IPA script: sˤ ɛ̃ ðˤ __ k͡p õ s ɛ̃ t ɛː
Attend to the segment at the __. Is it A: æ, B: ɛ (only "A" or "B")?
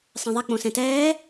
B